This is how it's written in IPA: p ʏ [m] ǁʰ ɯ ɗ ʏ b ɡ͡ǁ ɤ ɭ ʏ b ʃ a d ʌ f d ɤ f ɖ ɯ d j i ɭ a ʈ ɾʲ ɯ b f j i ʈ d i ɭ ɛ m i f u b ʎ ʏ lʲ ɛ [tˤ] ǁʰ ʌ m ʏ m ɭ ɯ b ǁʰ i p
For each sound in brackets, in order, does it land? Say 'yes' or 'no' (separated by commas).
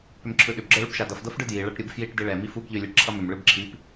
yes, no